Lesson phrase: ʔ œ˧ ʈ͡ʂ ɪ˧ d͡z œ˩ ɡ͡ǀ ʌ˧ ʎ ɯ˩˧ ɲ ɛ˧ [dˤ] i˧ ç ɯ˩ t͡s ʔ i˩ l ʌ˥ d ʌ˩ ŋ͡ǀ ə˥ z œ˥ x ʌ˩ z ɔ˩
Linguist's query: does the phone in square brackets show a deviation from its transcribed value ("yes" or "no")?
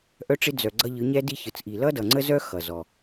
yes